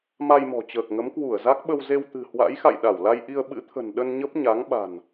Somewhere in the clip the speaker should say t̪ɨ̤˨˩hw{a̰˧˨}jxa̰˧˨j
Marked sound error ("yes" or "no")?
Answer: yes